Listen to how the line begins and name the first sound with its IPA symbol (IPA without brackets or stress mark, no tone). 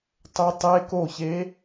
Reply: tˤ